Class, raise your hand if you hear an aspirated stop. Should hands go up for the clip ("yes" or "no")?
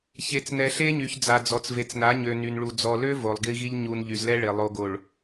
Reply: no